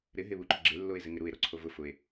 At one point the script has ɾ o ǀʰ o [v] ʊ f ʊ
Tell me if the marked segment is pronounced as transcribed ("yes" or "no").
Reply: yes